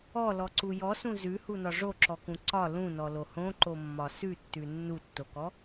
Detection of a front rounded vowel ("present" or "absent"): absent